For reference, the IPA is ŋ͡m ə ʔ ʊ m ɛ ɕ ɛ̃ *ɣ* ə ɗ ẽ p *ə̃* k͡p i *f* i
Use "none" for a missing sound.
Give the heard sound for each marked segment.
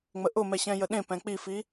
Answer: j, ɛ̃, f

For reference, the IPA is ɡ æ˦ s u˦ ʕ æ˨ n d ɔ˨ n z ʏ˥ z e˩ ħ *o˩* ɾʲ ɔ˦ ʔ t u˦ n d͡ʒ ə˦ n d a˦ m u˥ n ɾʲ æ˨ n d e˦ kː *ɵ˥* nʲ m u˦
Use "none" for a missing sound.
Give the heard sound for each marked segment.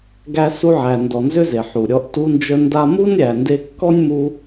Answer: u˩, ɔ˥

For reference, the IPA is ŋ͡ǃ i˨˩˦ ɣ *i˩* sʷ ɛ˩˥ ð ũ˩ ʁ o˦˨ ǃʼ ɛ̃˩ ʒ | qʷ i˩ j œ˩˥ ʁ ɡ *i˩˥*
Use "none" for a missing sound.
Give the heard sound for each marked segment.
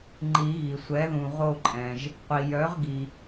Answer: i˩, i˩

